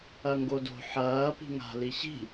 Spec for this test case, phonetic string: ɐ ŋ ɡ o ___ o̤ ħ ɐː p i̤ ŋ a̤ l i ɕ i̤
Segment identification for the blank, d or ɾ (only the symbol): d